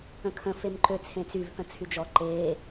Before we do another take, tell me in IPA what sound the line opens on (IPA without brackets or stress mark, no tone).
ə̃